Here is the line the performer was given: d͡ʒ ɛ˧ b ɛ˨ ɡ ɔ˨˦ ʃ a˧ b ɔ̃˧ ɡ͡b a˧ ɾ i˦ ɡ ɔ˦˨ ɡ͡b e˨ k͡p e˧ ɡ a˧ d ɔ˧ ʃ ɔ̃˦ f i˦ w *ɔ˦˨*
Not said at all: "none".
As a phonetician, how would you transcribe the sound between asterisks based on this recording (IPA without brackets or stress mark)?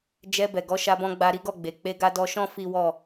ɔ˦˨